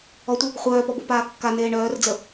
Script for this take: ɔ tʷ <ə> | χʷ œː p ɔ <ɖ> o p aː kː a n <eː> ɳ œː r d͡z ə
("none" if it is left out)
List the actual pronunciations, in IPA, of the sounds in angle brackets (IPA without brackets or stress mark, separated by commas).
ə, b, eː